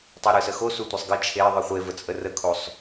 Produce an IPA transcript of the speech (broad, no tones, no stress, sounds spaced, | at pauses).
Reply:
tˤ ɯ ɾ ɯ s ə x o s u tʷ ə sˤ ɡ ə t͡ʃʰ e ðˤ ɯ χʷ e v ə t͡sʼ ə r ə kʰ o sˤ